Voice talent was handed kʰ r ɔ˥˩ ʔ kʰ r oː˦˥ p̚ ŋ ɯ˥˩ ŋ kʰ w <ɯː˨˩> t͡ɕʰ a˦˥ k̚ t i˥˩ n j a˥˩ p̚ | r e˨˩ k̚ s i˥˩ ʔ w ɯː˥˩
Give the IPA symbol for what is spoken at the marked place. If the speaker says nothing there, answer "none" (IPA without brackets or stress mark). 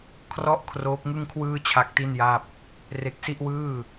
ɯː˥˩